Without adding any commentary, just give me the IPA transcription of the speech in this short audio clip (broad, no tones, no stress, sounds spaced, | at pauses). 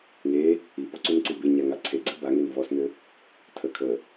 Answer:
ŋ e | i p ɔ ǀ u n ǀ i b e ɲ a ŋ a ǀʰ e ɡ͡ǀ ɘ b a ŋ e n v ɔ s n ɘ | tʰ ə kʰ ə